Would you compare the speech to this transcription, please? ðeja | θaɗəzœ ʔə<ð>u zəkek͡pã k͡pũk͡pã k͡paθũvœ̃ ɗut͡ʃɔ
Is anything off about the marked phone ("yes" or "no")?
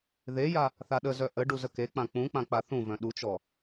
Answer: yes